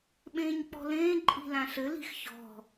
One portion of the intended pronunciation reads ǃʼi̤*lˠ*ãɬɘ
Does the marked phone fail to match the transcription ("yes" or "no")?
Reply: yes